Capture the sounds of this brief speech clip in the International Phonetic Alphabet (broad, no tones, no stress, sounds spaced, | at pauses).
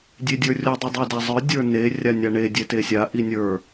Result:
dʲ e dʲ ə˞ rʲ o dˤ i dˤ e d a zˤ ə˞ dʲ ə˞ n e rʲ a nʲ a ɳ e dʲ e t e sʲ a ʔ i nʲ ə˞